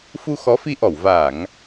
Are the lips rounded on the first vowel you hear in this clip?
yes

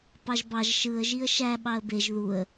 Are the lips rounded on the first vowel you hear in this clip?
no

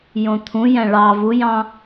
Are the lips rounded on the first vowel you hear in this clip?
yes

